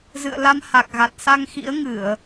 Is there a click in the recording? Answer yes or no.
no